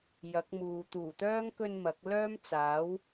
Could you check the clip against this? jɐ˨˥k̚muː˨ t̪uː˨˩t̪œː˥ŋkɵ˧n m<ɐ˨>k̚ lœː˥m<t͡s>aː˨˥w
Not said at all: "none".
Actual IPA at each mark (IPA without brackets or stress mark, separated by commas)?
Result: ɐ˨˥, t͡s